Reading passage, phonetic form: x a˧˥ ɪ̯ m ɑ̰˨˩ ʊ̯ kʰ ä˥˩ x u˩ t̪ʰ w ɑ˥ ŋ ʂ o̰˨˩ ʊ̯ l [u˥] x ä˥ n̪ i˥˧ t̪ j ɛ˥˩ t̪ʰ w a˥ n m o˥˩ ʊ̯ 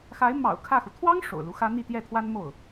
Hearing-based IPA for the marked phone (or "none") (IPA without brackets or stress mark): u˧˥